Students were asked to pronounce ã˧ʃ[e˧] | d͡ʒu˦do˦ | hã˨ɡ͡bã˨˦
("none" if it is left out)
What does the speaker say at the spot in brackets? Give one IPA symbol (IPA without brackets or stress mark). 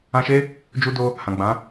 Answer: e˦